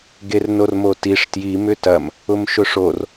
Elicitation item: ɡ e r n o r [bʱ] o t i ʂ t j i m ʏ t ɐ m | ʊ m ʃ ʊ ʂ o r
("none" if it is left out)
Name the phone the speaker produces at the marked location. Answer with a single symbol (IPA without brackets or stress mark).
m